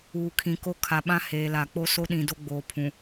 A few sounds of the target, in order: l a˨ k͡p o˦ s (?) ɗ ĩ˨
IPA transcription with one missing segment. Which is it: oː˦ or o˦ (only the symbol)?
o˦